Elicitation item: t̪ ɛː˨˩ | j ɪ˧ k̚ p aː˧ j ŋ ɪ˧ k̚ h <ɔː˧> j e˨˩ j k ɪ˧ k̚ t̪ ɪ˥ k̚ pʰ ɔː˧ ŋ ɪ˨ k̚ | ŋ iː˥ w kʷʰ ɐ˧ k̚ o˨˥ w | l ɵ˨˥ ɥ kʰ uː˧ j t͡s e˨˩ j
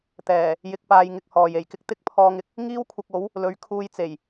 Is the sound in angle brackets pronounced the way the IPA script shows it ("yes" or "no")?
no